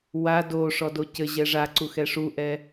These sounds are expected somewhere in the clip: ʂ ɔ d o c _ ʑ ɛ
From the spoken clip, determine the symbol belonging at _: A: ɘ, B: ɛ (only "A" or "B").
A